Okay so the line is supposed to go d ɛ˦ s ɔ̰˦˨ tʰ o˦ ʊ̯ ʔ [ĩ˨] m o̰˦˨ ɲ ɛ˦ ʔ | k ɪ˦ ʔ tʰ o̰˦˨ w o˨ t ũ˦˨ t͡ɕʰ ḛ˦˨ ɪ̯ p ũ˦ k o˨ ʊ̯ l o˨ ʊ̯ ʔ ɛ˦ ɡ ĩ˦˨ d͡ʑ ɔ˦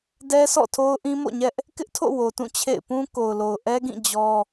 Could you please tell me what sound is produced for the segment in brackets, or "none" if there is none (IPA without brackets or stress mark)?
ĩ˦